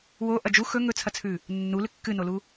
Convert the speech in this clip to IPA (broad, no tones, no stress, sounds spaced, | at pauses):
w o ʔ ɐ d͡ʒ u x ɵ ŋ ɵ t͡sʰ ɐ t͡sʰ ʉ | nː u l ɨ kː ɨ n o l u